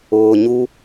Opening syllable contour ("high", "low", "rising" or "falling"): low